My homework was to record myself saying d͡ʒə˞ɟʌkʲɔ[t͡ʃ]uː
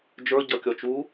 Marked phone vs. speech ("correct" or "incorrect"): correct